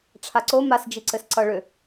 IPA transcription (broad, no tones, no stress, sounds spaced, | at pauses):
ʈ͡ʂʰ a ǀ o m a s d͡ʒ i ǀ ɘ s ǀ ʌ ɭ ʏ